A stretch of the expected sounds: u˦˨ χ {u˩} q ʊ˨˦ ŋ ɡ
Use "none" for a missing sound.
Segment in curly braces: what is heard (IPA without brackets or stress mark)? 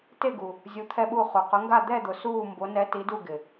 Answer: u˩